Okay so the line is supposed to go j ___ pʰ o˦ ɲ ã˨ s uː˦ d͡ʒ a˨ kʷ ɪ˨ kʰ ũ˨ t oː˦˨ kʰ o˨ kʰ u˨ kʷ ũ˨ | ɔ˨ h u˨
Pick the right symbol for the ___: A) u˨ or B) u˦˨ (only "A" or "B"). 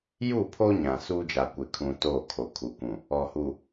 B